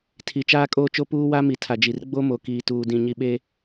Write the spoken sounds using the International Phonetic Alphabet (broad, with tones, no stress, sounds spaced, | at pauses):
tʰ i˨ t͡ʃ aː˦ kʼ oː˦ t͡ʃ o˦ p uː˦ w a˦ m i˨ tʰ a˨ d͡ʒ i˨ r ɡ͡b o˦ m o˨ k iː˨ t uː˨ d ĩ˨ ɲ i˨ ɓ e˦